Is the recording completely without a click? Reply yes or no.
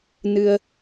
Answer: yes